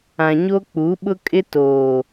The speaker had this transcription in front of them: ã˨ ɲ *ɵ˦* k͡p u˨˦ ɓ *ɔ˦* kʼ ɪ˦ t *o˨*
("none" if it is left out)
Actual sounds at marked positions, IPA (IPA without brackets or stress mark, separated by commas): o˦, ʊ˦, oː˨